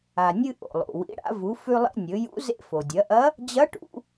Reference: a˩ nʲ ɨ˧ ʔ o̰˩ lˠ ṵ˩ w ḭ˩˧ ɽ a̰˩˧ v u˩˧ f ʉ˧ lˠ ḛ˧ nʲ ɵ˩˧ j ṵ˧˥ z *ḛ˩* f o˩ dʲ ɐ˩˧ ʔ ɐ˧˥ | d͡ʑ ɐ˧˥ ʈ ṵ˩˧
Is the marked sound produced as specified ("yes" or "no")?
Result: no